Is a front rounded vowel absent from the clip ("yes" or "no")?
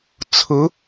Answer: yes